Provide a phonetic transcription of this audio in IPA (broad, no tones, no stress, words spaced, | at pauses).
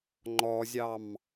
ŋ͡ǃɔzʲɑm